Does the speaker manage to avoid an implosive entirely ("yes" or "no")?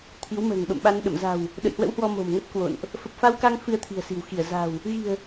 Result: no